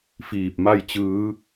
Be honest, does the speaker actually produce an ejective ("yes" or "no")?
no